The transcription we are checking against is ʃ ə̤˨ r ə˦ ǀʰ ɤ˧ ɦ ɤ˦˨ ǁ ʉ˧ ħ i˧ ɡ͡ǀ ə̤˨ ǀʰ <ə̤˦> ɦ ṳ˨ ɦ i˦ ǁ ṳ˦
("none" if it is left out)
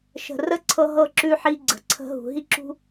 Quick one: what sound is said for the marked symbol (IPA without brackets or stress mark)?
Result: ə̤˧